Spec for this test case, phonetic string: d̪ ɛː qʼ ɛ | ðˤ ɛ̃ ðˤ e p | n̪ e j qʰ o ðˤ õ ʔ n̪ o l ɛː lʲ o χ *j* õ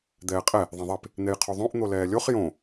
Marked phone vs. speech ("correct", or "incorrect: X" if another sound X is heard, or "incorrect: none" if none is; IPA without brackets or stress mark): correct